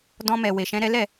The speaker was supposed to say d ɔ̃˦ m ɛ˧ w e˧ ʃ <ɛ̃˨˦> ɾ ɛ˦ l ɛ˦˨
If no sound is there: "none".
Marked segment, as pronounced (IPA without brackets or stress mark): ɛ̃˦